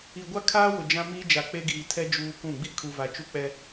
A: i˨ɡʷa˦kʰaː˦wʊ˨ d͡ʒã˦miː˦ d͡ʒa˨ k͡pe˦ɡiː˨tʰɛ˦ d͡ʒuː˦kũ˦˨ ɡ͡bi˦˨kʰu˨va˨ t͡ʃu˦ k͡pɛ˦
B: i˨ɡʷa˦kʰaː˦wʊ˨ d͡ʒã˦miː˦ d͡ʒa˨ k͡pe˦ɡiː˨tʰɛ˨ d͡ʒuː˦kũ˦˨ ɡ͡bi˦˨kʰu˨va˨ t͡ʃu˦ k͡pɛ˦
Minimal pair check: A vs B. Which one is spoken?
A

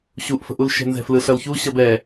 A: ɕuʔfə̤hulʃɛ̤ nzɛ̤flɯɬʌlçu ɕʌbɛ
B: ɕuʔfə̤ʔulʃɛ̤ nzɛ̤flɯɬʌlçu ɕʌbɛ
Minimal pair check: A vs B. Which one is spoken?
B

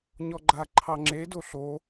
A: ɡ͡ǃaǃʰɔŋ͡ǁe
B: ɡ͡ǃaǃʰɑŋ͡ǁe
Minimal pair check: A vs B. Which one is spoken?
B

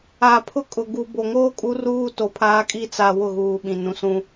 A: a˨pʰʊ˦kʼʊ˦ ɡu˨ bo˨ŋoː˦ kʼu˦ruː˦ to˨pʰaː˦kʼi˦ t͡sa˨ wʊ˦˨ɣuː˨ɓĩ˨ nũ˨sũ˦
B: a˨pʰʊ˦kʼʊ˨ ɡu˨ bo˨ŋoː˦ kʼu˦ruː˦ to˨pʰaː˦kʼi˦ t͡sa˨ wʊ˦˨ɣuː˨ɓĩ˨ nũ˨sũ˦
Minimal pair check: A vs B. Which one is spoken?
B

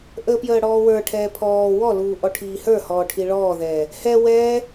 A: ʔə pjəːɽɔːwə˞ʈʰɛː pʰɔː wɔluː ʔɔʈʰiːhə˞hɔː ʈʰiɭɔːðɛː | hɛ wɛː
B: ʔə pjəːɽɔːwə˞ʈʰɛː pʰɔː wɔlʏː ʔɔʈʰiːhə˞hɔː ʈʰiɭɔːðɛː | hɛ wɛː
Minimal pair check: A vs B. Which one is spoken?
A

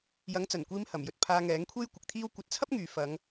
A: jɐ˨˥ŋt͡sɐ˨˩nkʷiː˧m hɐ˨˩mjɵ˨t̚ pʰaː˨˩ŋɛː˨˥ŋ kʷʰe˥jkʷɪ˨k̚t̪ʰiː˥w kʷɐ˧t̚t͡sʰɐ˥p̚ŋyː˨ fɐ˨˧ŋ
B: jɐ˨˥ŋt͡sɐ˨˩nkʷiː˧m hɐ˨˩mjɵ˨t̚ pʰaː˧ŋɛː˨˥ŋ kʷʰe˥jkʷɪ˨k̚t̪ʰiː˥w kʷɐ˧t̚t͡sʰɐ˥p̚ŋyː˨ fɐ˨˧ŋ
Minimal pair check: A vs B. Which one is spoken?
B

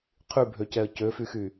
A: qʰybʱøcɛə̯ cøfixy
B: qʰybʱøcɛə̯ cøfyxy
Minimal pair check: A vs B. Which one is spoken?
B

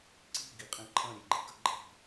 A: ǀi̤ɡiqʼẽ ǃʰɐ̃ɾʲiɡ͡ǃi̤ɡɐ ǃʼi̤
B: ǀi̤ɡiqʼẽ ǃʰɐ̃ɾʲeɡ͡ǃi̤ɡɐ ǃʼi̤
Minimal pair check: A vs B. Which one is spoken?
B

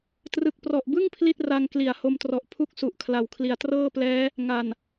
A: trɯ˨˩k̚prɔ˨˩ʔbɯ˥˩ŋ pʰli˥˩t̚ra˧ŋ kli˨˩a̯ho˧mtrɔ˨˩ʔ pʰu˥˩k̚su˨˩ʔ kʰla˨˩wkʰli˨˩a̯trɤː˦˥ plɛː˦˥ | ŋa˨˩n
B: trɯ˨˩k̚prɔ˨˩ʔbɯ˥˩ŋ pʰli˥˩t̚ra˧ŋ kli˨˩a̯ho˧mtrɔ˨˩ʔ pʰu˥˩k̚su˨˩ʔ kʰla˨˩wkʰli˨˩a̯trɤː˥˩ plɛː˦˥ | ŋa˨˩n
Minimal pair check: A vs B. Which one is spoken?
B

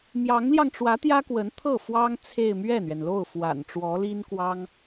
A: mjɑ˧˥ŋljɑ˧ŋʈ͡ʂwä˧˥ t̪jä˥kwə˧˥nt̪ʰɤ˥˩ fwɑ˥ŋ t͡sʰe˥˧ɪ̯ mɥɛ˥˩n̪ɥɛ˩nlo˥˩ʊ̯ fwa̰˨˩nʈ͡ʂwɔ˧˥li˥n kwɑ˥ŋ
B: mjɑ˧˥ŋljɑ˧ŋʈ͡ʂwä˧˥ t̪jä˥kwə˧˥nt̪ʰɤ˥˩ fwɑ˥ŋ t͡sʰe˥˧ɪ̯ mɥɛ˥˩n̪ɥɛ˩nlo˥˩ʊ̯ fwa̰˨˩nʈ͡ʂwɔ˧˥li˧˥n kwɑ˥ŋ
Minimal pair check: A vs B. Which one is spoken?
A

